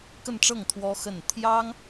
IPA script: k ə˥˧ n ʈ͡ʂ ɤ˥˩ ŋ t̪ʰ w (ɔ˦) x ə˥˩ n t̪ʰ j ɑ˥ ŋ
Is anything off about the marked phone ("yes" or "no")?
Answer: yes